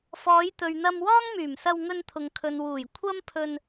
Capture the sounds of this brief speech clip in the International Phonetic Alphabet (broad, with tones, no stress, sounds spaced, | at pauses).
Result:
f ɔː˨˧ j t̪ ɵ˨ ɥ n̪ ɐ˧ m w ɔː˥ ŋ m yː˨˩ m s ɐ˧ w ŋ ɵ˧ n t̪ʰ ʊ˨ ŋ kʰ ɵ˨ n w uː˨˩ j kʷʰ ɐ˥ m pʰ ɵ˧ n